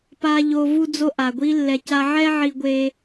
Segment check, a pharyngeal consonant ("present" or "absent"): present